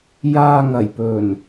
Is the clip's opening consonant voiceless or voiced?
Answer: voiced